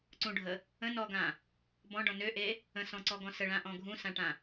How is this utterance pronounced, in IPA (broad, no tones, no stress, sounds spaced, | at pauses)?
ǀ ũ ɖʱ ə | ə̃ n ɔ ɡ ã | b ɔ̃ ɖ ɔ̃ n ø ʔ e | ə̃ s ɔ̃ ǀ ɔ ɡ ɔ̃ s ə ɭ ã ʔ ɔ̃ ɡʱ ũ s ã ʈ ã